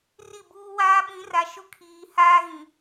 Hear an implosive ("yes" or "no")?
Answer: yes